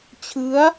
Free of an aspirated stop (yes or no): no